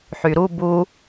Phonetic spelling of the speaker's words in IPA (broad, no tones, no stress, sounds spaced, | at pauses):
ħ y ɾ u b u